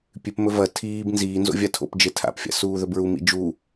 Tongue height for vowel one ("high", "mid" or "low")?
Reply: high